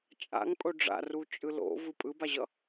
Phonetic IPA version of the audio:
t͡ʃʼ a̰ ŋ pʼ o ɖ͡ʐ a̰ r u t͡ʃʼ ɯ l o̰ v ɯ pʼ ɯ b a ʑ ʌ

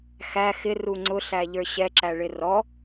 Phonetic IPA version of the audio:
x æ x ɪ r u ŋ͡ǀ ʊ ɬ æ ʎ ə˞ ɕ ɛ ǁ æ ɭ ɪ r ɔ

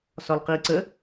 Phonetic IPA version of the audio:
s ɒ l q i ǀ ə

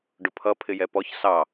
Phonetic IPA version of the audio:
ɖ ʊ pʰ ʌ pʰ ɪ j ɛ p ɔ ç s ɑ

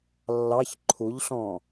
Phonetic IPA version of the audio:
lː ɑ ç ǃʰ u ʎ ɬ ɔ̃

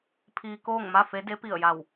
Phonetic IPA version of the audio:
pʰ iː˧ k oː˥˨ ŋ m a˥˨ f e˧˥ d e˧˥ p i˧˩ ə̯ j a˧˩ w

